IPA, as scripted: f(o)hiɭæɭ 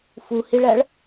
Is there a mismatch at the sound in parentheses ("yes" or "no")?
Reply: yes